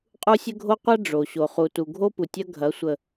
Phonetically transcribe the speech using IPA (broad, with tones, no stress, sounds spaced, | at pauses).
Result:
qʼ u˦ sʲ ə˦ ɡʱ o˦ qʷ a˦ ɖ͡ʐ o˨ ɕ o˦ χ u˦ t u˦ ɡʱ o˦ p u˨ tʲ ɐ˦ ɡʱ ɐ˨˦ sʷ ə˨